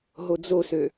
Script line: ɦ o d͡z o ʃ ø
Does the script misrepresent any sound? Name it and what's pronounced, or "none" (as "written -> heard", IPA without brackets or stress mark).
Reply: ʃ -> s